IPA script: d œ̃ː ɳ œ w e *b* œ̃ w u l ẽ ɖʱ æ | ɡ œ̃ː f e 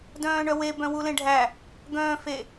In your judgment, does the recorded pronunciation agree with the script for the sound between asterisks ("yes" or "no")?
yes